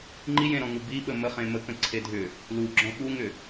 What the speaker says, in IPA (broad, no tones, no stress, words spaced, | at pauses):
ŋ͡ǃijẽɾɔ̃ŋu biɓə məχẽ məkə̃ ǀʰedʱʏ | lu ɡ͡ǁɔ̃ɓuŋʏ